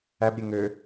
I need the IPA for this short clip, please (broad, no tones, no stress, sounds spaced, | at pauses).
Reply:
æ b ɾʲ e ŋ ø